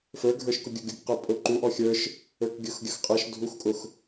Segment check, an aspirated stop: absent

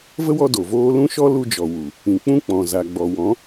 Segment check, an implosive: absent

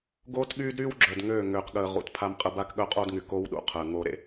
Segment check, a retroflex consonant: absent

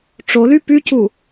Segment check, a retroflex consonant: present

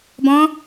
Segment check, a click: absent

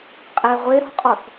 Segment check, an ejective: present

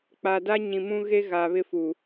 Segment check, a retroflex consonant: absent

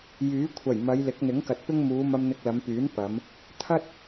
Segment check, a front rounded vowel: present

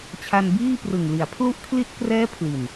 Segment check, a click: absent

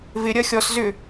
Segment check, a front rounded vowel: present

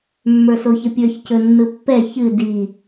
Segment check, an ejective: absent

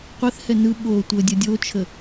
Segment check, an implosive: present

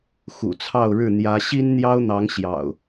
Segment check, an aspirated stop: present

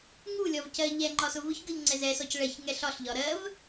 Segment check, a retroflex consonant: present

